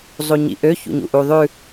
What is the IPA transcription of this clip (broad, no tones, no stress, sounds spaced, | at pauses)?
zˤ u ɲ ḭ ʔ ø ç ṵ ɲ ṵ ʔ u ðˤ ʉ